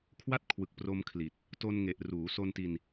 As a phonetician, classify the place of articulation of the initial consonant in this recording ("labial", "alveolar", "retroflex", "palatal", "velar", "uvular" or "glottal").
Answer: velar